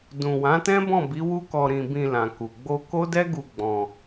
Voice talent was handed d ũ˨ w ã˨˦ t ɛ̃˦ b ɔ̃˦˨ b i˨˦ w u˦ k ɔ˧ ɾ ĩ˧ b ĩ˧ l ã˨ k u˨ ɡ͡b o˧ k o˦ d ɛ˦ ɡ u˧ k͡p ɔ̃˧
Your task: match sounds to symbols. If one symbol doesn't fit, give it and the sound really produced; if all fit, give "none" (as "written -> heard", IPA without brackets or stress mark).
k͡p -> ɡ͡b